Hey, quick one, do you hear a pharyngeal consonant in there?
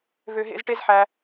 yes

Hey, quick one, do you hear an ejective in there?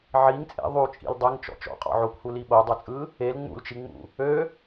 yes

